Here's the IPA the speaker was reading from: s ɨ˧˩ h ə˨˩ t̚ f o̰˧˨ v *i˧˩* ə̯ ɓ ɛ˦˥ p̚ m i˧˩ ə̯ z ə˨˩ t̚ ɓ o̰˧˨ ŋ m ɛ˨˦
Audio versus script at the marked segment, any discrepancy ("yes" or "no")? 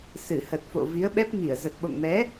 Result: yes